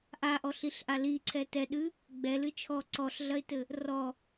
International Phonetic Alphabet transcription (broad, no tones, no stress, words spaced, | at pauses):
ʔaʔɔɬiɬʔa liǀʰɛ tɛɗɨ | ɡ͡bɛlɨ t͡ʃʰɔ ǀɔɬɮɐɪ̯tɘ | rɔ